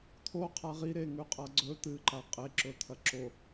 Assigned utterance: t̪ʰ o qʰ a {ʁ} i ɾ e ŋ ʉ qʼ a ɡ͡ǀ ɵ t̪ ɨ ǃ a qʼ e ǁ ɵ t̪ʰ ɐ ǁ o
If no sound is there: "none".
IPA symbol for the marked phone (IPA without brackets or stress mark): ʁ